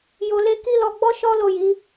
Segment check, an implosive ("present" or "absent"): absent